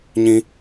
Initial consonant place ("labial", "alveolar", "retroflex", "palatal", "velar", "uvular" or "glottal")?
palatal